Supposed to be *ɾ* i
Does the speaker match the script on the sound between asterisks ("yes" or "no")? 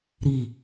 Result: yes